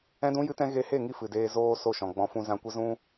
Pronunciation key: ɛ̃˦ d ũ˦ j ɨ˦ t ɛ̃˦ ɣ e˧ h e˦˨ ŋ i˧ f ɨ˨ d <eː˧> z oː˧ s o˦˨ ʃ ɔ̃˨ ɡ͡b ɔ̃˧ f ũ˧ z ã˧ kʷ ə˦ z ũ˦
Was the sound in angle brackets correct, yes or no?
yes